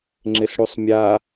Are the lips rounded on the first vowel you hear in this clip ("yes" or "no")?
no